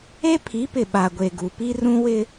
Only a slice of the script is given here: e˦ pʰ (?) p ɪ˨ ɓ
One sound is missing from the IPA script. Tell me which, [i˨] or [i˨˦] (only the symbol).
i˨˦